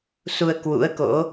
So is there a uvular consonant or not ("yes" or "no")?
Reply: no